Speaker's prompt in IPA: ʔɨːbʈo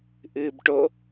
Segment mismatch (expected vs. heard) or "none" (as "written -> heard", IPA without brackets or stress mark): none